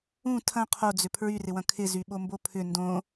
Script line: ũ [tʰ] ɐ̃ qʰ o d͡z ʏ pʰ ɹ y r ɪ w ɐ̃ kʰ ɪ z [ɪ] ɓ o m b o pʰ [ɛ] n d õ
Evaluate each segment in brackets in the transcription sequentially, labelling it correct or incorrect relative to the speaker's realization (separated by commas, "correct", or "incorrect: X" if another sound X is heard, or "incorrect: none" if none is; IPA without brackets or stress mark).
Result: correct, incorrect: y, incorrect: ʏ